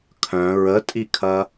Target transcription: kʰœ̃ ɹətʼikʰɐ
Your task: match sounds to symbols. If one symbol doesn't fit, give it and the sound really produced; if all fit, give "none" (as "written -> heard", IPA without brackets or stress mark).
none